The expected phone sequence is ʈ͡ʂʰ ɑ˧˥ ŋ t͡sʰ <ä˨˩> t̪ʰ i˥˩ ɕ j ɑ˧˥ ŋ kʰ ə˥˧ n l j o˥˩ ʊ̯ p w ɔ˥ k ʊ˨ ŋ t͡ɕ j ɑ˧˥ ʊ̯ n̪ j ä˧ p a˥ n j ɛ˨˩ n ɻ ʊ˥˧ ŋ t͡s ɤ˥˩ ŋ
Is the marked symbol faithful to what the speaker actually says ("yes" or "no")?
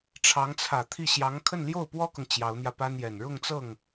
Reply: yes